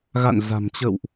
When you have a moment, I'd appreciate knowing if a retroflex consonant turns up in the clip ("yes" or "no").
no